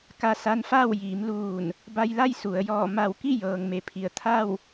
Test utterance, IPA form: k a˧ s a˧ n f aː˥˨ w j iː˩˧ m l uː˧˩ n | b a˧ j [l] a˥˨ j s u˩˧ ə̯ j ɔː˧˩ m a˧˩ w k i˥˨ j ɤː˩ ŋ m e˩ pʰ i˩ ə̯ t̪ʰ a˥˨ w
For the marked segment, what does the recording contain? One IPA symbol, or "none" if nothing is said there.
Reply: l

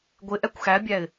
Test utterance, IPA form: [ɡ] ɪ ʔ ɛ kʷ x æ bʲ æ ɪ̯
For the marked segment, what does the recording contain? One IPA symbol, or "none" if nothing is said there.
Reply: ɡʷ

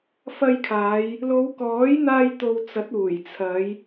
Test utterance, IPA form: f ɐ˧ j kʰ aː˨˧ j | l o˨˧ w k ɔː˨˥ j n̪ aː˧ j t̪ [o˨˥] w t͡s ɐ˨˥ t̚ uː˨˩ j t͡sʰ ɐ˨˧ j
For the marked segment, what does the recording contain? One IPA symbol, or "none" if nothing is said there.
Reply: o˧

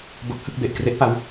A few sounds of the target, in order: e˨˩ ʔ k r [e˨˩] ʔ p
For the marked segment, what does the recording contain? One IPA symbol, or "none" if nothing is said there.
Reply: e˦˥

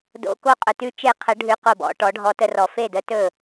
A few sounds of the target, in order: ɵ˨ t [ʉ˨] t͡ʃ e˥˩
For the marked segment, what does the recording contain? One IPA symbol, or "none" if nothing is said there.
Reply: ʉ˥˧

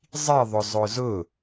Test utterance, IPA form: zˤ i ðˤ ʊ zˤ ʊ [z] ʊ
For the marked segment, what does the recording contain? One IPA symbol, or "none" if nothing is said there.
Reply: z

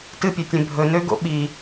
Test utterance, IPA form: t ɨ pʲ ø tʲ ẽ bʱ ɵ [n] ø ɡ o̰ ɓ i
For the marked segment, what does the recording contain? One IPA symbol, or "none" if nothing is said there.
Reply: n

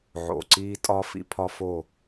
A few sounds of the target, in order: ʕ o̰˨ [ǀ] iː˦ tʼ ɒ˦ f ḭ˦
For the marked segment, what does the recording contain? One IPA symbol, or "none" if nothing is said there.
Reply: ǀ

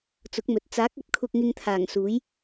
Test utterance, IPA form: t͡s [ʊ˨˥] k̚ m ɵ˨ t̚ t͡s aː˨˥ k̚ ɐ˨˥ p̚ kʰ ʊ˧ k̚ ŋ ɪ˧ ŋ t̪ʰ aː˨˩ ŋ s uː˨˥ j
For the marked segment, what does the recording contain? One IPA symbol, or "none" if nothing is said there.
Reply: ʊ˨˥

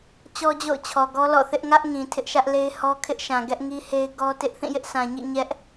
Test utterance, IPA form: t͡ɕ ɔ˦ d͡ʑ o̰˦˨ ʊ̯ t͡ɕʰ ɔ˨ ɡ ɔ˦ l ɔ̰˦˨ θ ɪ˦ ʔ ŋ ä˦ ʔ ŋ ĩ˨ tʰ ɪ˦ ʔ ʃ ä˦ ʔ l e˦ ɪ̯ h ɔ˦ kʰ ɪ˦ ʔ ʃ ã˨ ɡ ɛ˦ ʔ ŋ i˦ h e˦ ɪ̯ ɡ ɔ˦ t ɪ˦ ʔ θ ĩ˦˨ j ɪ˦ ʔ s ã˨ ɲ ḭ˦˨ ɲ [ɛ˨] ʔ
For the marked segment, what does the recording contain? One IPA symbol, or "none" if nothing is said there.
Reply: ɛ˦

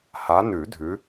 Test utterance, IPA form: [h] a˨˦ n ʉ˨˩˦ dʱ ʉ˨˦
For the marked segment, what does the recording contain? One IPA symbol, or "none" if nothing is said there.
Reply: h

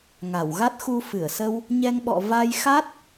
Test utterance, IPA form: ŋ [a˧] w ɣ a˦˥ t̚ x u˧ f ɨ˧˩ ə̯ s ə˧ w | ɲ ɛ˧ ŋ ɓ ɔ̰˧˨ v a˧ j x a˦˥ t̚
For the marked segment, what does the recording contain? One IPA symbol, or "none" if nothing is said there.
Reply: a˧˩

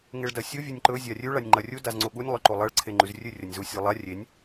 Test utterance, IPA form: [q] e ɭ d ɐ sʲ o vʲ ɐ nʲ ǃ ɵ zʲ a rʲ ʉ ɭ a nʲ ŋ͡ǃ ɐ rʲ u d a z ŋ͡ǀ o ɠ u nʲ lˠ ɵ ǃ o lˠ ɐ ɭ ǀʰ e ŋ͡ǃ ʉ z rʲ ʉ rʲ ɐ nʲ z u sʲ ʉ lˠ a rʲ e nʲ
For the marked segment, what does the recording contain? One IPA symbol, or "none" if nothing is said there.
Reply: ŋ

